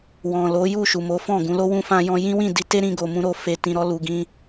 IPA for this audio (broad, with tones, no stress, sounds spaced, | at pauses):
w ɔ̃˨ l o˨˦ j u˦˨ ʃ u˨ m o˨˦ f ɔ̃˦˨ ɡ ũ˨˦ l o˦ w ũ˧ f ã˧ j ɔ̃˧ j ĩ˦ w ĩ˦˨ d i˨˦ t e˦ ɾ ĩ˧ ɡ o˧ m ũ˦ ɾ o˦˨ f e˧ t ĩ˧ ɾ ɔ˧ l u˨ ɡ ĩ˧